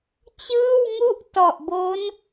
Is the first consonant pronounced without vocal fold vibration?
yes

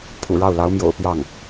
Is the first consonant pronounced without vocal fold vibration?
yes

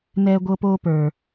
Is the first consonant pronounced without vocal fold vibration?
no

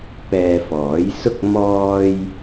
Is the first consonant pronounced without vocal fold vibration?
yes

